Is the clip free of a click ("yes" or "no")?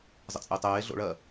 yes